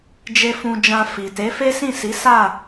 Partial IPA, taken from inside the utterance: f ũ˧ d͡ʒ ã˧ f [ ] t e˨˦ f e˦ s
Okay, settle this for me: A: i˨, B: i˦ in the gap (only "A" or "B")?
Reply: A